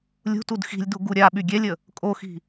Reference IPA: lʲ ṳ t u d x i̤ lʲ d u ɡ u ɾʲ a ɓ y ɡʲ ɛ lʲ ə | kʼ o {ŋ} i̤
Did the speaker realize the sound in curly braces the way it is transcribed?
no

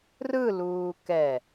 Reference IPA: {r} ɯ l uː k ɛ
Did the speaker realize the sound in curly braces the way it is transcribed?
yes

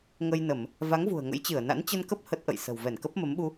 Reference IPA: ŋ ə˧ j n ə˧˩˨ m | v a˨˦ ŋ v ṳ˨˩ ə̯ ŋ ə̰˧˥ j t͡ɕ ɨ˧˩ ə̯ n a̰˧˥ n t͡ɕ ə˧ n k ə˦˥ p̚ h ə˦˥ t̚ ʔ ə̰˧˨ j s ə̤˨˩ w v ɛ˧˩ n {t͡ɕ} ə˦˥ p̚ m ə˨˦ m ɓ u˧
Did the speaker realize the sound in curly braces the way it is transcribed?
no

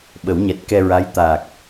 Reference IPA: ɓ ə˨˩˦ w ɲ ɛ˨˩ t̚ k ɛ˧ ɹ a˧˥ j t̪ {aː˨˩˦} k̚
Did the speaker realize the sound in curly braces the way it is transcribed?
no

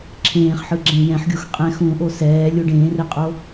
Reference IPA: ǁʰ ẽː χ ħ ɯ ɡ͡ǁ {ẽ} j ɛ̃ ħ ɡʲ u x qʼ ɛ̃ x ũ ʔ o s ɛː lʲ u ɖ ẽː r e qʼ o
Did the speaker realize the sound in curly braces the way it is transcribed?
yes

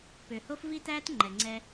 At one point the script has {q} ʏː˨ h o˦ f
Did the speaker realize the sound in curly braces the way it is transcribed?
no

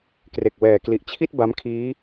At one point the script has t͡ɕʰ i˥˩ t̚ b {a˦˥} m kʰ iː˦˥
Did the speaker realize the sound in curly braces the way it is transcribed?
yes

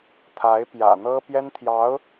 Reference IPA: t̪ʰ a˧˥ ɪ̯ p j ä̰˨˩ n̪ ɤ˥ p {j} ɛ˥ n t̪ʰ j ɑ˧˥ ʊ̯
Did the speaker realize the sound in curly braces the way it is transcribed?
yes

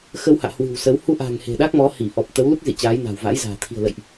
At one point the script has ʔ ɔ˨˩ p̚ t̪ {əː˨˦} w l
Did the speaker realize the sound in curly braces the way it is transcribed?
no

